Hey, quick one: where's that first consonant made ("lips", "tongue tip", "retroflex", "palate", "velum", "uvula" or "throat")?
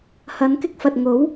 throat